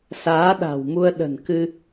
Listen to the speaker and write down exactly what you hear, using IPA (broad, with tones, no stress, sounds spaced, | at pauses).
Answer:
s aː˨˦ ɗ a̤˨˩ w m u˧ ə̯ ɗ ə̤˨˩ n k ɨ˧